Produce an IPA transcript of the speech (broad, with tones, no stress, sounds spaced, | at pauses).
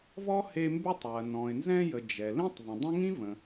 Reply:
v ɔ˥ h e˦ m b ʉ˦ tˤ w ɐ˨ n ɔ̃˨ ɪ̯ n z ɛ̃˦ j ə˨ d͡ʒ ɛ˨ l ĩ˥ tˤ v ə̃˨ dˤ ə̃˥ ŋ ĩ˥ v ə̃˨